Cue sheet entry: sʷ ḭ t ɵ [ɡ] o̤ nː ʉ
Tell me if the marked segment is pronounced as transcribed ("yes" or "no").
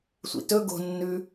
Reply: yes